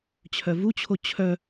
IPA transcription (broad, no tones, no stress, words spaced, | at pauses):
t͡ɕʰœvut͡ɕʰo t͡ɕʰœ